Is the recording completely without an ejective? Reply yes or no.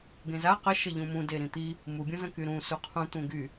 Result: yes